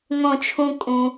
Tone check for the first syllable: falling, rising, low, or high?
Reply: falling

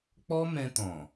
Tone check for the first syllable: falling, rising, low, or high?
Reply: high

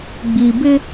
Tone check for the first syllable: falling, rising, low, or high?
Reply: low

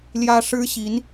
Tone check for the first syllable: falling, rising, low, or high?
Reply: high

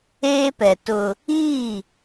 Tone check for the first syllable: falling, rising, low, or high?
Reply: high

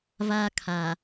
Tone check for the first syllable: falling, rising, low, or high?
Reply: high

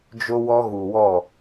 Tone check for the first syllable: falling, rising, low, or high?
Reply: high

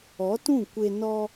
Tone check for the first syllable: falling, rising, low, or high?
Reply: rising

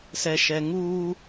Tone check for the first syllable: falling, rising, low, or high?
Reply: low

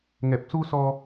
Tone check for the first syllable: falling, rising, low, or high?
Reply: low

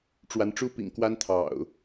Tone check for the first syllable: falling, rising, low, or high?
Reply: rising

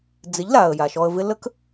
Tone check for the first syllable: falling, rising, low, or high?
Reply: rising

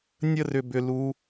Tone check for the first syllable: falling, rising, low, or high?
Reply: high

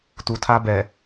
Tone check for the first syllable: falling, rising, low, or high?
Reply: low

